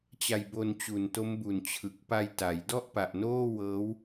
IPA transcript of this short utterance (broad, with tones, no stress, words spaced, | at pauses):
t͡ɕa˧jbo˧n t͡ɕu˨˩n to˦˥mbu˨˩n t͡ɕʰɯ˨˩k̚ pa˧jta˩˦j dɔ˥˩ʔpa˨˩ʔnoː˥˩ wɤː˦˥w